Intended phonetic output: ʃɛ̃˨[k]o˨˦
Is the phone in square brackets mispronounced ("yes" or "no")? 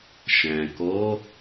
no